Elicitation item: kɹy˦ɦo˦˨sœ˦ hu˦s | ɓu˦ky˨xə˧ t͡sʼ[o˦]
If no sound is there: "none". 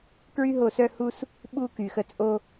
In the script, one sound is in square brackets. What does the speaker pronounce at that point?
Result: o˦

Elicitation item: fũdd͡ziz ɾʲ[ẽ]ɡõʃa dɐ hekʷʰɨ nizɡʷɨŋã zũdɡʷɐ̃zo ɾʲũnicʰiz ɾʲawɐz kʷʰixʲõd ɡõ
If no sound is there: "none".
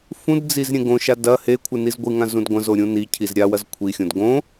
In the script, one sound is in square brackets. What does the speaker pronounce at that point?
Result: ẽ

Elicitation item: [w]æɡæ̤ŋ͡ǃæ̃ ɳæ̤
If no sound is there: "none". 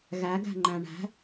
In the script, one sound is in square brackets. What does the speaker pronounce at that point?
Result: ɣ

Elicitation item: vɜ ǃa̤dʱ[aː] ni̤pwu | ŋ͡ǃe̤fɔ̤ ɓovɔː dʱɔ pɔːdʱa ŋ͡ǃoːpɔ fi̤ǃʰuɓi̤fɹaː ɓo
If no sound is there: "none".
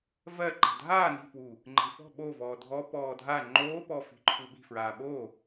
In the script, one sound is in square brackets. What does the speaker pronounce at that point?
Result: aː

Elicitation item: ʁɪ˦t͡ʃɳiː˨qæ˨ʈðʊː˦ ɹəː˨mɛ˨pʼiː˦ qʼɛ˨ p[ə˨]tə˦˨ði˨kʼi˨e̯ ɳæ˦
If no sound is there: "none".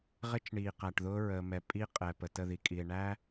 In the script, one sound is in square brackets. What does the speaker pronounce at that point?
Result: ə˨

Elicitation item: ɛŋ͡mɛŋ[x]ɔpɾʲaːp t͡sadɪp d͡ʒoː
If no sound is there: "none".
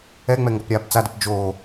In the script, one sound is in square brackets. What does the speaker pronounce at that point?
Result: ɡ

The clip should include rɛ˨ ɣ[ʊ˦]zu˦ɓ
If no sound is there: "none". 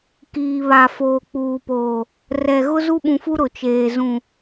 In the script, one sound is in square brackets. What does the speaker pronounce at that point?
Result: ʊ˦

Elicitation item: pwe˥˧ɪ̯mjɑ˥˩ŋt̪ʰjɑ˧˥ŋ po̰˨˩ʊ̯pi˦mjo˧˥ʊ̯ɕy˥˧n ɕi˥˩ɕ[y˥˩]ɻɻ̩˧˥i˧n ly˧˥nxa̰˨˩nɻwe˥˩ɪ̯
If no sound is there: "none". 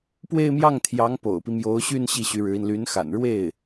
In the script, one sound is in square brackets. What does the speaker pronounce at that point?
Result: y˧˥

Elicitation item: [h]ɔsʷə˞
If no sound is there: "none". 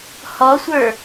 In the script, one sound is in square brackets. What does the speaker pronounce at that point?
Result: h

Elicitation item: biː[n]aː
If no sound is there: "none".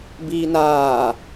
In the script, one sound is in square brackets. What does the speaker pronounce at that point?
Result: n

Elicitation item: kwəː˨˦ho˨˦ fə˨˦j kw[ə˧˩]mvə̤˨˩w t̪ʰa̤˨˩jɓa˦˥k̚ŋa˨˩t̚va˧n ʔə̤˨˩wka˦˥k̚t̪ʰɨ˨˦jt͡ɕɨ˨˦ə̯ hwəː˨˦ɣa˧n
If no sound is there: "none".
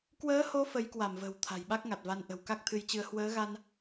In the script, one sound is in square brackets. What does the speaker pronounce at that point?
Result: a˧˩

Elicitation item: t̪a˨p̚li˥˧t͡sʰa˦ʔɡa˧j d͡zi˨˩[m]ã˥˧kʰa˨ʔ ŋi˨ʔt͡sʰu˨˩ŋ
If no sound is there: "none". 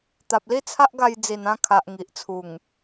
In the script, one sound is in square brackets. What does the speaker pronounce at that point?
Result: n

